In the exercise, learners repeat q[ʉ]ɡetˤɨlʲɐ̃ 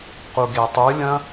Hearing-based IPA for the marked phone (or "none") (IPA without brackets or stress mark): u